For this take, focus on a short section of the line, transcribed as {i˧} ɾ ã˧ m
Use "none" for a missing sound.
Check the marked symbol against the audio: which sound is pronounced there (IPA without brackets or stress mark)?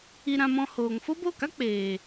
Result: i˧